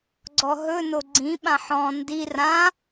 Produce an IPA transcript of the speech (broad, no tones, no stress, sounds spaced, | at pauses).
ɡ͡ǀ ɔ ɦ ɵ n o ɡ͡ǀ ĩ ɓ ã ħ ɔ̃ n d i r ã